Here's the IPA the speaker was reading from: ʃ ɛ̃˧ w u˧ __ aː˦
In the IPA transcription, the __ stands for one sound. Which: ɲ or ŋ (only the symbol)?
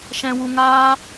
ŋ